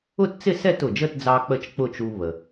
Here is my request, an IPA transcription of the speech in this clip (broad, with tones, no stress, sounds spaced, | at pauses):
ʊ˥˧ t t͡s ɪ˥˧ s ɛ˥˧ t ʊ˩ d͡ʒ ə˥˧ t d͡z ɑ˧ k͡p ə˥˧ t͡ʃ k͡p ʊ˥˧ t͡ʃ u˧ β ə˩